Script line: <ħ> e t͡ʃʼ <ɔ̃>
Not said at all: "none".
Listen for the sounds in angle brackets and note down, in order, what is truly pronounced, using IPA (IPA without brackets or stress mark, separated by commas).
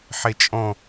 ħ, ɔ̃